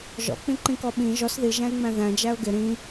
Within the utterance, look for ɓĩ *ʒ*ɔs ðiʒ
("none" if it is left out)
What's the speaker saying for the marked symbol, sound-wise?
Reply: ʒ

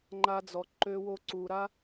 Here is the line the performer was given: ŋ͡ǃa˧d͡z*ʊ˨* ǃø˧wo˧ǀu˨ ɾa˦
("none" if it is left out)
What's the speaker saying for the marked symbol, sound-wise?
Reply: ɔ˨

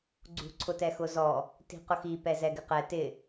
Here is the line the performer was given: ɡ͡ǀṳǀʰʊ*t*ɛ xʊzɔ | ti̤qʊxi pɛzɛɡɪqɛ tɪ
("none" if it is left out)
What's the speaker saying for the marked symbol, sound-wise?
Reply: t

